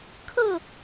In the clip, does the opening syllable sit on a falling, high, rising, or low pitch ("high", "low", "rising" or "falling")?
falling